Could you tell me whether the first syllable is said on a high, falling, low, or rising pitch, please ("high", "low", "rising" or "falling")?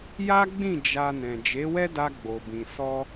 high